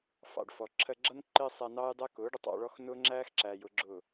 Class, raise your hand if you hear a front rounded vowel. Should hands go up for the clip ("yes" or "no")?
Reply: no